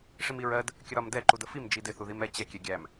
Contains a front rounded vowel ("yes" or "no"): no